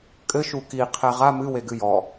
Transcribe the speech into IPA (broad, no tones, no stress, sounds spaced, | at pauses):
kʼ ɘ ʃ u k i qʰ ɛ ʁ a m ɨ w e ɡ ɨ j ɔ